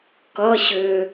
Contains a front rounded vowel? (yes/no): yes